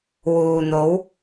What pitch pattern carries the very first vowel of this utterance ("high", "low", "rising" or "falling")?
low